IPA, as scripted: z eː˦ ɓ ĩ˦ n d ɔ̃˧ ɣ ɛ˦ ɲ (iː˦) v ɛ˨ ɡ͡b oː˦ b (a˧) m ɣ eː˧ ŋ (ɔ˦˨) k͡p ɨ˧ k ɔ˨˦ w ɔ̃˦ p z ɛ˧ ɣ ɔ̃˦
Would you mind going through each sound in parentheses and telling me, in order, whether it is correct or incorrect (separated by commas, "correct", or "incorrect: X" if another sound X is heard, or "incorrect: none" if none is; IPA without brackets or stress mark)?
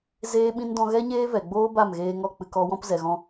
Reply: incorrect: eː˦, incorrect: a˦˨, correct